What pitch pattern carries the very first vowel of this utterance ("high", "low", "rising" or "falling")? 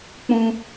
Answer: high